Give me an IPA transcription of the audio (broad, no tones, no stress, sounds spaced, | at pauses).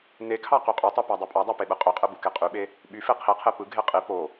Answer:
n e kʰ ɑ q y qʼ ø tˤ ø p æ dˤ o pʼ ɑ dˤ ɑ p e ɓ ɯ qʼ ø qʼ ɯ b u k e qʼ y ɓ e | ɓ y f e qʰ i qʰ e p ɯ ɡʱ e qʼ i p o